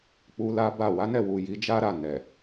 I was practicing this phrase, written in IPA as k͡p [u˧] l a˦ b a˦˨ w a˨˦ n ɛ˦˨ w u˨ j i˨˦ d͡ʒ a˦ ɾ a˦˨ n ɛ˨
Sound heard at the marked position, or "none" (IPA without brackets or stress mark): u˧